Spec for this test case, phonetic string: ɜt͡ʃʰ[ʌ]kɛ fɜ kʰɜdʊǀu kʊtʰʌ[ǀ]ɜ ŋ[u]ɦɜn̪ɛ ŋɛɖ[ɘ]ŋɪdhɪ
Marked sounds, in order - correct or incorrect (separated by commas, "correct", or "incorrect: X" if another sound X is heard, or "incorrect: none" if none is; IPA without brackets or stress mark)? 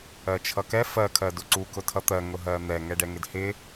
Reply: correct, incorrect: t̪, incorrect: ʊ, incorrect: ɛ